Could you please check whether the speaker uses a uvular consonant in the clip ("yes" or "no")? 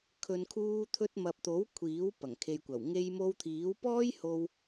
no